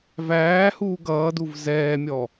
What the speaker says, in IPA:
v æː h uː ɡ ʌː d u v z ɛː mʲ ɔ

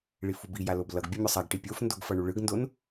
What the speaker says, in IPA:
ɭ i f u b i j a l o b l ʌ ɡ bʲ ʌ mʲ o sˤ a ɡ ʈ i pʲ o f n d o ɡ f ʌ ɳ u ɭ ɯ ɡ n d o n

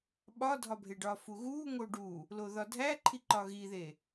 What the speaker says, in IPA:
ɓ ɒ dʱ ɒ bʱ e ɖ ɒ f u ɣ u ŋ o ɖ u | l o ð ɒ dʱ æ ǃʰ i ǃ ɒ ɣ i ð e

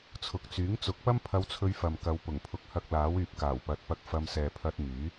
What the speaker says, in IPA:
t͡sʰ ʊ˨ k̚ t͡s yː˨˥ ŋ t͡s ʊ˨˥ k̚ p ɐ˥ m pʰ ɐ˧ w t͡sʰ ɵ˧ ɥ f ɐ˨ m k ɐ˨˧ w p ʊ˨˩ ŋ pʰ ʊ˨˥ k̚ h ɐ˧ k̚ l aː˨˥ w yː˨ p̚ k aː˨˩ w p ɐ˨˥ t̚ p ɐ˧ k̚ f ɐ˧ m s ɛː˨ pʰ ɐ˧ t̚ m yː˨˥

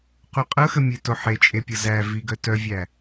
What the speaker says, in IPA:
q u qʼ ɤ x ə mʲ e t o ħ e t͡ʃʼ e pʲ ɤ z æ v i ɡ œ t œ vʲ æ

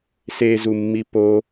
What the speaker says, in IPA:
s e z u mː i p o

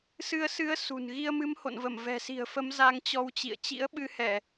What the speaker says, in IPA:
s ɨ˧ ə̯ s ɨ˨˦ ə̯ s ṳ˨˩ n ɣ i˧ ə̯ m ɨ˨˦ m h o̰˧˨ n v ə˧˩ m v ɛ̤˨˩ s i̤˨˩ ə̯ f ə˨˦ m z a˧ ŋ t͡ɕ ɔ˧ w t͡ɕ ḭ˧˨ ə̯ t͡ɕ ḭ˧˥ ə̯ ɓ ɨ˧ h ɛ˧˩˨

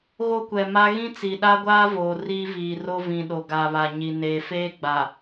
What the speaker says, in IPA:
ɣ o˦ kʷ ɛ˨ m a˦ ɣ ĩ˦ t͡s i˨ ɗ a˦ ɡʷ aː˦ v oː˨ r iː˦ v iː˨ r o˦ v ĩ˨ ɗ o˨ ɡ a˨ β a˨ ɲ i˨ n eː˨ f eː˦ ɡ͡b a˨

